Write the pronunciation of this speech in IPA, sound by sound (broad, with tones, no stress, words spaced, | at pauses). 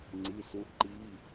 ŋ͡ǀi˧˥˧su˦˥ǃi˧˥˧